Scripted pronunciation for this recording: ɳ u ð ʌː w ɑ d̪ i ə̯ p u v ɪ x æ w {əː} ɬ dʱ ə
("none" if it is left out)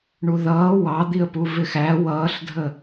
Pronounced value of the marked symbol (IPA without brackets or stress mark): ʌː